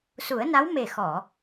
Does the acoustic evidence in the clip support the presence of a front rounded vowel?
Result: no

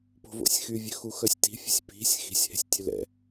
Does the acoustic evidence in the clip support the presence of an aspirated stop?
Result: no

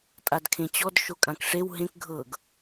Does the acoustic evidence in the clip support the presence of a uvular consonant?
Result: no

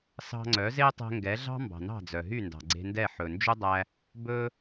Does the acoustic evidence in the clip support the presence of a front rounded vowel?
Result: yes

